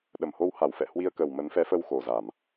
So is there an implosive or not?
yes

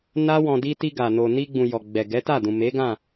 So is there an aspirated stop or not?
no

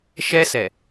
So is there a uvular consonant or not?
no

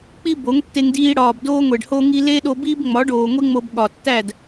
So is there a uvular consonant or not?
no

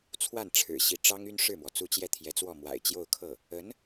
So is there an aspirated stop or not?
yes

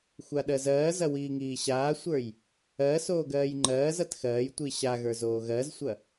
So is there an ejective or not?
no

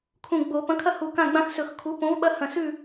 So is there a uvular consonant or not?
no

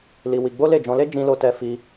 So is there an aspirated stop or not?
no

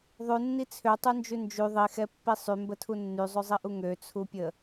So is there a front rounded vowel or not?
yes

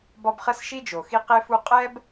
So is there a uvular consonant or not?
yes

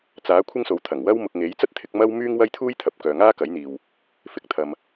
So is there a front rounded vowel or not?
yes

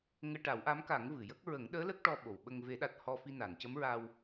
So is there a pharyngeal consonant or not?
no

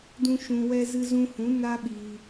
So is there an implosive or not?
yes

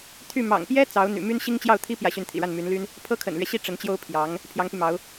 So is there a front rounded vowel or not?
yes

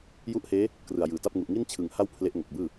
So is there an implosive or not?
no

